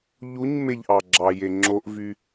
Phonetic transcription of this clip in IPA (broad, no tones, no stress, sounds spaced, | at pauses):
ʎ u ɲ m e ʎ ʔ ɑ ɡ͡ǁ ɑ j e ŋ͡ǁ o ʔ v y